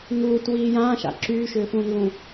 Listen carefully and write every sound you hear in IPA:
ŋ uː t w iː j ãː ʃ a̰ ǁ yː ʃ ʏː f ũː n l ũ

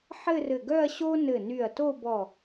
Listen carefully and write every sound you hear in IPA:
ħ ɘ˥˧ r ɘ˧˩ ɡ œ˥˧ ɐ̯ ɕ o˥ n ɘ˧˩ n y˧˩ ɐ̯ t o˥˧ b ɔ˧˩

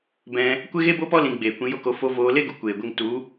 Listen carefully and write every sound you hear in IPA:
b ɛ̃˧ | kʷ e˦ ɣ e˦ b o˦ p ɔ˦ l ĩ˧ ɡ͡b eː˨ kʷ ĩ˧ j o˦ k o˧ f o˧ v oː˧ l e˦ ɡ u˨ kʷ eː˨ ɡʷ e˧ ŋ t u˨˦

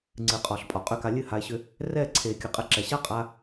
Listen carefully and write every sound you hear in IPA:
ŋ͡ǀ ɨ˨ qʼ ɒ˨ ɬ pʼ ɒ˨ qʼ ʏ˦˨ k a˧ lʲ ɨ˦˨ h a˧ e̯ ɕ ʏ˧ | r ɛ˦˨ ǀʰ e˨ kʲ ɨ˨ qʼ ɛ˧ ǁ ɛ˨ ɕ a˦ qʼ a˧

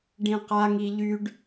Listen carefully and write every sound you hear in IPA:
ɖ ĩ q a ŋ i ʎ y ɖ

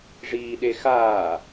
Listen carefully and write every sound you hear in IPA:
ʐ iː ɗ e x aː

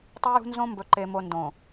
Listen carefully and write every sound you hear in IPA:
tˤ e˦ j ṳ˦ n z õ˦ m b ɵ˨ ǃ e˨ m o˨ n d õ˨

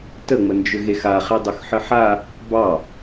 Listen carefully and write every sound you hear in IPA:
t ə ŋ͡m ə n d͡ʒ ʏ ɣ e x a χ e dˤ ʏ x ħ ə ħ a | b ɑ

